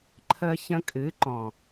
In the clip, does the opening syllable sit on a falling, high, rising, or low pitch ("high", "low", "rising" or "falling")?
high